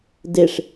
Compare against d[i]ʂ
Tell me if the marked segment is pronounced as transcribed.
no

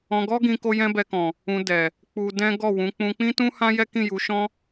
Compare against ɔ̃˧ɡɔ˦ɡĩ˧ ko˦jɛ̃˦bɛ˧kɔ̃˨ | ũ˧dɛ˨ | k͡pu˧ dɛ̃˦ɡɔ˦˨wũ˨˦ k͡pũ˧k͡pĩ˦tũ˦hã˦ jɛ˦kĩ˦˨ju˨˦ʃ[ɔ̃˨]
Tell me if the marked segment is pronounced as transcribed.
no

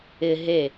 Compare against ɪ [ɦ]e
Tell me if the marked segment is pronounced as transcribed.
yes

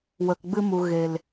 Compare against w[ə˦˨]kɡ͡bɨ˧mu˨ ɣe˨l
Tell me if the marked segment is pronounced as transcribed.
no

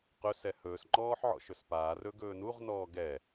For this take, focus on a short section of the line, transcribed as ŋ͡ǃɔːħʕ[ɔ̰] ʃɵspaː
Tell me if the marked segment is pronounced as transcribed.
yes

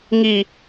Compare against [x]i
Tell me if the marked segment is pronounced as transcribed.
no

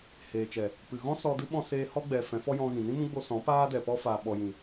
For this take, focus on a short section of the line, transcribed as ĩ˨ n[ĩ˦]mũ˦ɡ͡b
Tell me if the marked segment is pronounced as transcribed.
yes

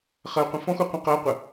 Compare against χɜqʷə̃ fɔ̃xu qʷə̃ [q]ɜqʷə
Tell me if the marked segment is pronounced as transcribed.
yes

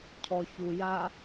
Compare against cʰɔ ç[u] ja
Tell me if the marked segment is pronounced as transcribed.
yes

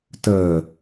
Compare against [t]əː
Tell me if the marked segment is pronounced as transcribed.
yes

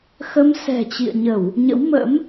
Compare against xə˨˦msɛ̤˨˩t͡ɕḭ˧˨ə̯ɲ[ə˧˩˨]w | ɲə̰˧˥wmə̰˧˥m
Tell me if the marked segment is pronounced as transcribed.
yes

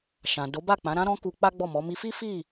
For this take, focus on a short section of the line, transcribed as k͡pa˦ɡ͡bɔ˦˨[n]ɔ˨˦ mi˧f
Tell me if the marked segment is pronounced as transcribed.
no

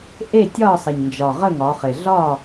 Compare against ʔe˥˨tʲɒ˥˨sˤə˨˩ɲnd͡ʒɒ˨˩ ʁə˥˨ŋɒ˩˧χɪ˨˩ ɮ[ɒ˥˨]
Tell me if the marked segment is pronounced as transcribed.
yes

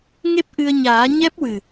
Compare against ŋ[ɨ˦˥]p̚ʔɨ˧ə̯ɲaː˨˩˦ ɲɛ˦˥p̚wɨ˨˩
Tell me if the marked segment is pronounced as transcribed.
no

